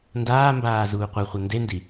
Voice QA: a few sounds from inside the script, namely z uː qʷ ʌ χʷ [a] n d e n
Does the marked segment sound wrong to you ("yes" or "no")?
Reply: yes